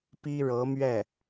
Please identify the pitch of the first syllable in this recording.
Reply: high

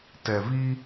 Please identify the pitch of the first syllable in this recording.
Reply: low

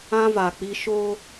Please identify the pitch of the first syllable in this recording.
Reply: high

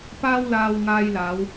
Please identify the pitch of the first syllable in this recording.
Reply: high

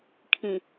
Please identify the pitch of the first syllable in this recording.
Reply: low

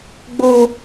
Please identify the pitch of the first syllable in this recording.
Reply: high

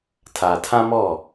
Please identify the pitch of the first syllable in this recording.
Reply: low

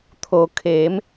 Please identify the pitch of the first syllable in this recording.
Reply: low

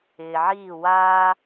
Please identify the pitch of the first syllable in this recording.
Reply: low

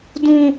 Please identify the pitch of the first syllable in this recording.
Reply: high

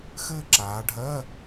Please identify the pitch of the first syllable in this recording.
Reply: falling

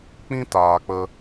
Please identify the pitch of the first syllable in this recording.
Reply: high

